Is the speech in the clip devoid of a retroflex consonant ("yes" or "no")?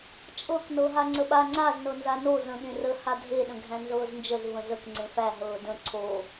yes